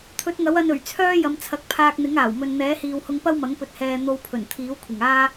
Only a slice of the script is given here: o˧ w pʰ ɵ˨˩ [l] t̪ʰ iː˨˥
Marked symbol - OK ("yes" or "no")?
no